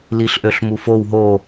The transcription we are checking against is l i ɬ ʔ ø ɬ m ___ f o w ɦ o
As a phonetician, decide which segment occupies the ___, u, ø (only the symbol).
u